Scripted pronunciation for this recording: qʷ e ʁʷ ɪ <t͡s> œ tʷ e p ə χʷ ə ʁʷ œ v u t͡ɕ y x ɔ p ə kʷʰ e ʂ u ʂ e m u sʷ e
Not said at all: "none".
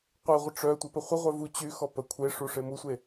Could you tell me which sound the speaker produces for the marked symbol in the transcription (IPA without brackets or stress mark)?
ʈ͡ʂ